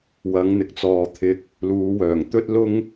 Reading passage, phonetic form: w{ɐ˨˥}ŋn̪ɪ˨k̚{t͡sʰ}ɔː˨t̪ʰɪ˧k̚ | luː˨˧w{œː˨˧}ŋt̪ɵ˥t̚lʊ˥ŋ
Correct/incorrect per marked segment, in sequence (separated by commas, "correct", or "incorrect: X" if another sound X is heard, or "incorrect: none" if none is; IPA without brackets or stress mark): correct, incorrect: t͡s, incorrect: œː˨˩